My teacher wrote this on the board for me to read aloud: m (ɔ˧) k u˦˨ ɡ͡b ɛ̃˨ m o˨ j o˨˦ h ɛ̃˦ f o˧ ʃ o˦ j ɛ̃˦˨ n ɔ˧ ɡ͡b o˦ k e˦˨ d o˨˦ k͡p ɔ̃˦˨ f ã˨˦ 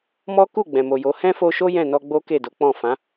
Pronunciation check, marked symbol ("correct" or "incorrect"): incorrect